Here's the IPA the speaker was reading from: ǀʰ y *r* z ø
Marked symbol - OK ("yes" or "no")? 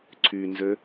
no